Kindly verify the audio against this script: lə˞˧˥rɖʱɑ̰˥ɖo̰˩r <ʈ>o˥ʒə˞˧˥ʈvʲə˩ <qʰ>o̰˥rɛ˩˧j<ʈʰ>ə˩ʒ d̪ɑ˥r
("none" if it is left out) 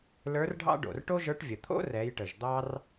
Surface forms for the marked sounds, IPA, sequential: ʈ, t̪ʰ, ʈ

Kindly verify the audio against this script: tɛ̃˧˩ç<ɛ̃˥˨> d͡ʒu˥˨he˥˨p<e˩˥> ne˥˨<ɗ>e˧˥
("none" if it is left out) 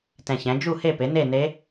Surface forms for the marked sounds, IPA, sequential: ɛ̃˩˥, e˩˥, n

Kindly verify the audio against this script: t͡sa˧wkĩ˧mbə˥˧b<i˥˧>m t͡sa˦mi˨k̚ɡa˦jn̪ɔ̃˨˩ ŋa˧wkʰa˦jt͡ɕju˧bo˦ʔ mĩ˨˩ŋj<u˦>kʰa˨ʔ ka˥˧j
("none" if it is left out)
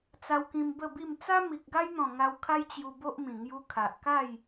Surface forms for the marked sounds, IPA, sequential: i˥˧, u˧

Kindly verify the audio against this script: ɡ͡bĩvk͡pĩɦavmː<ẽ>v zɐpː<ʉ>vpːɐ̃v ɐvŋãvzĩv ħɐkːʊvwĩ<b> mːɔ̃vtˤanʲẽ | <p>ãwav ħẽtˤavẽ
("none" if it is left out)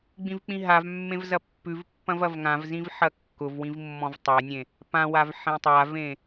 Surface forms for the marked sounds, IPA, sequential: ẽ, ʉ, v, p

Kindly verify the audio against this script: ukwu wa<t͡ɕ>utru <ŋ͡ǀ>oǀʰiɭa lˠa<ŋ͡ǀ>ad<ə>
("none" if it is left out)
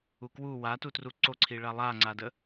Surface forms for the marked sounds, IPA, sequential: t, ǀ, ŋ͡ǀ, ə

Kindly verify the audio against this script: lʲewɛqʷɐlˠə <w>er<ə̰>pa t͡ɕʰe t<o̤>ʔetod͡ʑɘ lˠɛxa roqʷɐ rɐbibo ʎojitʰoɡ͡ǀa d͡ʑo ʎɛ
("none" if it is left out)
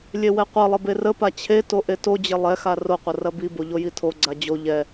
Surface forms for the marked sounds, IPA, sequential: b, ə, o

